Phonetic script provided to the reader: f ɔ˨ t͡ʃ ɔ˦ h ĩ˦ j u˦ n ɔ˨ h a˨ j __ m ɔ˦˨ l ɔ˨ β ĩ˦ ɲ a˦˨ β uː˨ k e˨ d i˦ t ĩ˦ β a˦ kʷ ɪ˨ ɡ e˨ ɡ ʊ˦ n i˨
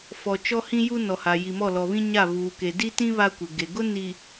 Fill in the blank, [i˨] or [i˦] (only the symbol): i˨